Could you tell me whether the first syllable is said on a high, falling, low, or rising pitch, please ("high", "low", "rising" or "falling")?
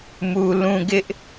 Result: low